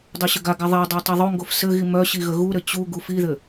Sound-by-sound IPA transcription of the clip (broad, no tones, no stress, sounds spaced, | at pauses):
dˤ o ɕ ə ɡ a ɡ a ðˤ e dˤ a tˤ i ðˤ o ŋ ɡ o f s ɘ ɣ i m œ ɕ i ɣ ə ɣ u ɾ ɘ t͡ɕ u ɡ u f i ð ɘ